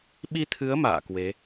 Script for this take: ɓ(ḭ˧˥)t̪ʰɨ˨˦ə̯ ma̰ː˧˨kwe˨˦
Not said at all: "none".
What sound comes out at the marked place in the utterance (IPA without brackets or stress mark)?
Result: i˧